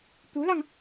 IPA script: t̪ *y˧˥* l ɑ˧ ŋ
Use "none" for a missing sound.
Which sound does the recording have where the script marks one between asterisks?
u˧˥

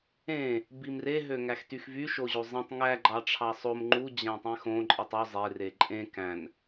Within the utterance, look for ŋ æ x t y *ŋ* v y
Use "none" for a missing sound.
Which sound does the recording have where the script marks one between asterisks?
x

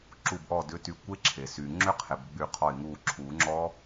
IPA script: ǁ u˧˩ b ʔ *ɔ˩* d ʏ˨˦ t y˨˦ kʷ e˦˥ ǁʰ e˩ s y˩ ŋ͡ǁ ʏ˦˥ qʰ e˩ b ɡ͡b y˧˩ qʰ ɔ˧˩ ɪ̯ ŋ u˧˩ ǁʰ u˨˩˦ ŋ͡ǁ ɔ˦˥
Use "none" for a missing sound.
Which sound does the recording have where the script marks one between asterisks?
ɔ˧˩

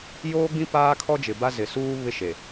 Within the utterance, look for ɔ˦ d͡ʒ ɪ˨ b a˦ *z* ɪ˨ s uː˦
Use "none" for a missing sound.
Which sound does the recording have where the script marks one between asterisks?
z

